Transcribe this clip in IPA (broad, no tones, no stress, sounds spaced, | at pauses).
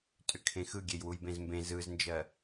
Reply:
tʼ ʏ kʰ ẽ x ɯ ɡʲ e j w u j b ẽ z m b ẽ z ɯ z n d͡ʒ ɜ